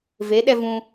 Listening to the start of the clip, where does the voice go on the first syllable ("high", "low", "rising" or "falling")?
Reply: rising